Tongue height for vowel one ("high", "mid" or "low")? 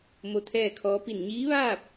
mid